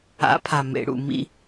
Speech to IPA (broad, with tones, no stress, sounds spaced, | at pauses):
a̰˨˦ pʰ a˨ m ḛ˨ ɽ ṵ˨ m ḭ˧